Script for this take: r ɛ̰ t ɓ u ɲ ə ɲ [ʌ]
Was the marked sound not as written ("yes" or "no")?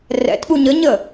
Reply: yes